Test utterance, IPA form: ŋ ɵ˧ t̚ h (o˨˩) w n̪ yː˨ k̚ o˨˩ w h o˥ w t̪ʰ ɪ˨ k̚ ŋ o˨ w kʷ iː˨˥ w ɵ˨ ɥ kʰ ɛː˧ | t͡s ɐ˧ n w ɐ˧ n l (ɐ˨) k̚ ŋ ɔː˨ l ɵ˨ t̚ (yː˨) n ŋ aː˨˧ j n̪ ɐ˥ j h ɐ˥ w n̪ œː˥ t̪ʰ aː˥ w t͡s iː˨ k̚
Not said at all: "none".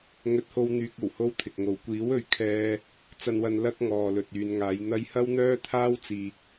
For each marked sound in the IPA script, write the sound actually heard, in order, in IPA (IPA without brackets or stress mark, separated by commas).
o˧, ɐ˥, yː˨